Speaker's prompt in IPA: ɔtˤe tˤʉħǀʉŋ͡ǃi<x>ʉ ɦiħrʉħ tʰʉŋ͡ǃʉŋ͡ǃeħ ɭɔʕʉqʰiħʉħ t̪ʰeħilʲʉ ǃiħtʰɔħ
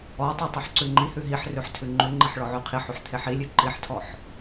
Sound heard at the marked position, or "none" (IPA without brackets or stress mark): h